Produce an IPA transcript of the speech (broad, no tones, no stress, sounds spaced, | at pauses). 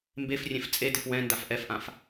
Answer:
m b e f rʲ ẽ f t͡sʼ e d ɪ f w ɛ̃ n d a f ʔ ɛ f ʔ ã f